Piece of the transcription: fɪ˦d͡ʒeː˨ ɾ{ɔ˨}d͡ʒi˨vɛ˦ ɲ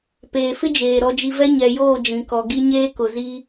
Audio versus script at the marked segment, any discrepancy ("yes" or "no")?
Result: no